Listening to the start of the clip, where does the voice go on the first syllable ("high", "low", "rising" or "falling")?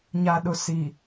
low